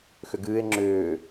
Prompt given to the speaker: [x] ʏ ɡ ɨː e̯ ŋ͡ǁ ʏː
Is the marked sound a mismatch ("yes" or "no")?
no